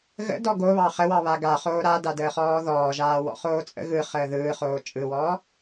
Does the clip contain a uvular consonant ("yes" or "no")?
yes